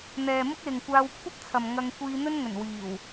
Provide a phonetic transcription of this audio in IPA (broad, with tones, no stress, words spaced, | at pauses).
n̪ɛː˨mʊ˥k̚lɪ˨ŋkʷaː˧w kʷʰɐ˥p̚t͡sʰɐ˨m ŋɐ˧ŋ kʷiː˧n̪ɵ˥nŋɵ˨˩n wiː˨˩w